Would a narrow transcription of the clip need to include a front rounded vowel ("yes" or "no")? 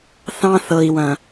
no